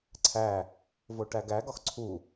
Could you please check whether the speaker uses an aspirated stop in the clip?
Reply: yes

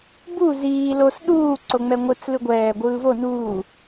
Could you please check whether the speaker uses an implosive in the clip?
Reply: yes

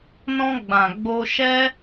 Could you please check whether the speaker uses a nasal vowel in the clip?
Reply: yes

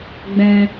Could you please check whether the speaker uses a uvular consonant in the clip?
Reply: no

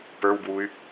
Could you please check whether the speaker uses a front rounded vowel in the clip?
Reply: yes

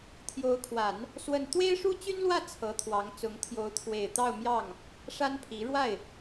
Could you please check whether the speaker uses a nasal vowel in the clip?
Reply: no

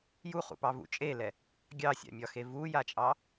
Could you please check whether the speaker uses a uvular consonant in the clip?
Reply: yes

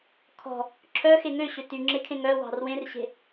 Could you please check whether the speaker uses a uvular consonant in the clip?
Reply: no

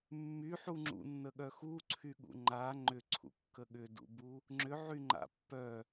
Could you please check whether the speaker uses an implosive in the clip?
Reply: yes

